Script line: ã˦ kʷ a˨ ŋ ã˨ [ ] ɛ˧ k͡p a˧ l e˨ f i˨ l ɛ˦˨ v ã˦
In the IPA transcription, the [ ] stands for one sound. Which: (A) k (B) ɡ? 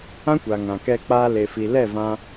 A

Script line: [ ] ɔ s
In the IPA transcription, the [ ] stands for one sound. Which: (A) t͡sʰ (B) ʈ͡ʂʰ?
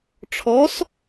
B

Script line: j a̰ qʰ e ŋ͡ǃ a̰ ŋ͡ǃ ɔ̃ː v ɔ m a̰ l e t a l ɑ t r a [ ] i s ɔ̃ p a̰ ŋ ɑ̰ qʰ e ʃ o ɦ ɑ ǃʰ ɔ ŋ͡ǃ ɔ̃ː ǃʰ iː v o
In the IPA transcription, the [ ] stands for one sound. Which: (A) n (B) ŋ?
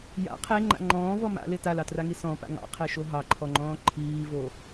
B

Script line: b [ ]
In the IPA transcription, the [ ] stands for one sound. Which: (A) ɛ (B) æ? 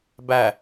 B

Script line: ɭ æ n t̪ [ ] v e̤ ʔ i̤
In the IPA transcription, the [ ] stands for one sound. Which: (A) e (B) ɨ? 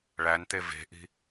A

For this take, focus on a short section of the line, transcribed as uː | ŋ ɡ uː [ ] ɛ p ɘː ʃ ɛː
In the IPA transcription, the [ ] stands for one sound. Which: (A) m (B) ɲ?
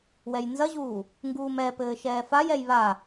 A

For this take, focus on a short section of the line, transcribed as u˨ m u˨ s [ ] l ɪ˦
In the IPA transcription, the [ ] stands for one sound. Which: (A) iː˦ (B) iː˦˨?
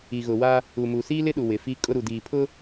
A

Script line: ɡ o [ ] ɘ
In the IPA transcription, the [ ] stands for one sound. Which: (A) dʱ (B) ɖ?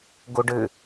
B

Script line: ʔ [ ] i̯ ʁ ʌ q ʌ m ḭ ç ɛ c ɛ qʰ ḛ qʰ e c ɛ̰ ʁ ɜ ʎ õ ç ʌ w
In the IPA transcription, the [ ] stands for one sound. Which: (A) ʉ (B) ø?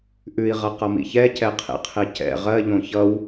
A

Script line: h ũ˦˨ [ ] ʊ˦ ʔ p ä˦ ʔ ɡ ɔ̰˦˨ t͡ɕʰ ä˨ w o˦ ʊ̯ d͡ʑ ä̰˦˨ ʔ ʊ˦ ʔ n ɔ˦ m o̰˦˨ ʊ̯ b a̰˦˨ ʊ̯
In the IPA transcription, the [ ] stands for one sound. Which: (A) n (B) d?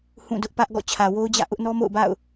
B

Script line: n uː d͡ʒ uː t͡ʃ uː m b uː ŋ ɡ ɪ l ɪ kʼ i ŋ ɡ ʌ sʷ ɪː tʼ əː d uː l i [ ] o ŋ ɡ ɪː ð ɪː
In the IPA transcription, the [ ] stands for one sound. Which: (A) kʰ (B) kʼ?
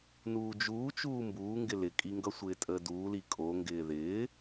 B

